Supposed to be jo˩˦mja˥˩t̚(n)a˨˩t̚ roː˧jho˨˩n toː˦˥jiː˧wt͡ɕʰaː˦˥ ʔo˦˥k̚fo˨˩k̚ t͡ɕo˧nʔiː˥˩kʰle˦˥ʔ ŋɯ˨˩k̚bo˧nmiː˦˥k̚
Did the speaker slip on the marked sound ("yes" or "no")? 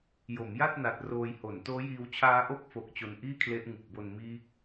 no